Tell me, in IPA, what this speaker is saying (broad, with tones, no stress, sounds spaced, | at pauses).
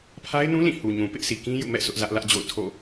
pʰ a˦ ɪ̯ n ũ˦ l ĩ˦˨ h u˨ ɲ ũ˨ p ɪ˦ ʔ sʰ i˨ k ĩ˦ j ṵ˦˨ m ɛ̰˦˨ sʰ ʊ˦ ʔ z ä˦ ʔ l ä˦ ʔ d͡ʑ o̰˦˨ ʊ̯ tʰ o̰˦˨